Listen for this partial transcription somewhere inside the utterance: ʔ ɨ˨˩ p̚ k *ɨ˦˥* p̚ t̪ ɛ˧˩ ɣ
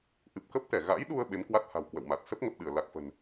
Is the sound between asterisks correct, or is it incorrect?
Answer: incorrect